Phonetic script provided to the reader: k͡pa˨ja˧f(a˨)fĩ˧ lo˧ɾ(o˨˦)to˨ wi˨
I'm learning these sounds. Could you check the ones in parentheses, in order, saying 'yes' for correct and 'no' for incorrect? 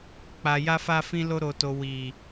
no, no

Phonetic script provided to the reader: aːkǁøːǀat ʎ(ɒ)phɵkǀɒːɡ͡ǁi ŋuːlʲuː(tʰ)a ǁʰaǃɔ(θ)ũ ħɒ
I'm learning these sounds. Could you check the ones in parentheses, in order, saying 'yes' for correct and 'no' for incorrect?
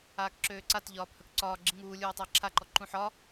no, no, no

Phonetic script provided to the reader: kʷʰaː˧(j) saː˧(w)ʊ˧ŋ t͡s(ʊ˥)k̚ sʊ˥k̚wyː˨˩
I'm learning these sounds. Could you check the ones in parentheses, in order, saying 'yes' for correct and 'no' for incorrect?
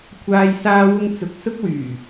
yes, yes, no

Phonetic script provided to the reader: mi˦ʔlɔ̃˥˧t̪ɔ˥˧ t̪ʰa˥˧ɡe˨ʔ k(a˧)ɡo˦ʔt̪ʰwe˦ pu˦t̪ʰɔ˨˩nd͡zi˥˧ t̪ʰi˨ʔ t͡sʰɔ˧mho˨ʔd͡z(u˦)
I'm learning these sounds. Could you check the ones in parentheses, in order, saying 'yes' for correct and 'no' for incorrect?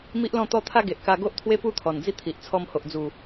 yes, no

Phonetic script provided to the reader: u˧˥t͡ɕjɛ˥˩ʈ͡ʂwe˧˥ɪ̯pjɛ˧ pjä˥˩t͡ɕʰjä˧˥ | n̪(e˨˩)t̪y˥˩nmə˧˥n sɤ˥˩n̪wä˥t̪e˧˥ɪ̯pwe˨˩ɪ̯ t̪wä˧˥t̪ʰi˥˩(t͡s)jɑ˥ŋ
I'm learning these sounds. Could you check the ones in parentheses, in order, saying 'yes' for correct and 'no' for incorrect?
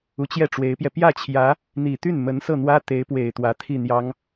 no, no

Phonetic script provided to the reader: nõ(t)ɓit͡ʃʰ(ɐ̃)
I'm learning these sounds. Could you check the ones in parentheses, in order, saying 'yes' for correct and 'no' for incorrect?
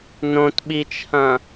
yes, yes

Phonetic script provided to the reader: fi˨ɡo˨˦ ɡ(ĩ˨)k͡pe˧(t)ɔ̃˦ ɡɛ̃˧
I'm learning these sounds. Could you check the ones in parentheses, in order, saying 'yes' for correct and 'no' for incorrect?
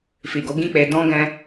no, no

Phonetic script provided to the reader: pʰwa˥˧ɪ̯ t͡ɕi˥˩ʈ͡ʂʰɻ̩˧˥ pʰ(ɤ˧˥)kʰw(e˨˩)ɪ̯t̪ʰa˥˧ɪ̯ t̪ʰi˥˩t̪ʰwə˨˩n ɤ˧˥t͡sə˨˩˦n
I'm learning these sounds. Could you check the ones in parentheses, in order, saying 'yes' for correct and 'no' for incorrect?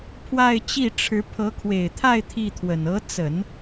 yes, yes

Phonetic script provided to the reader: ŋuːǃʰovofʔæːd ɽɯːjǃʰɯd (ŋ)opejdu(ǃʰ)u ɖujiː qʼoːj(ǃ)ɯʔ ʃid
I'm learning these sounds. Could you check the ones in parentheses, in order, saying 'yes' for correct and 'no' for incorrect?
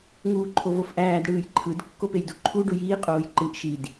no, yes, yes

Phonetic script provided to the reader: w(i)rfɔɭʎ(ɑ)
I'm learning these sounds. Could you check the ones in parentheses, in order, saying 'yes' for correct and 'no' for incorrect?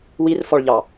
yes, yes

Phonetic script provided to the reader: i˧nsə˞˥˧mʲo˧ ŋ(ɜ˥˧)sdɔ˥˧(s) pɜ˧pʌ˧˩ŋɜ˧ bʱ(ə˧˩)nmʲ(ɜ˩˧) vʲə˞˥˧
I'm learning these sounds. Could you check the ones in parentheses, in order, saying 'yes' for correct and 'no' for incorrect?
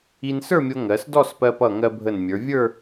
no, yes, yes, no

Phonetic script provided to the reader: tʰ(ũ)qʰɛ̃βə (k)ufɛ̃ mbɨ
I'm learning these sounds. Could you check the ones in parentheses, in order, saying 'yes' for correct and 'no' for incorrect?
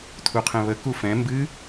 no, yes

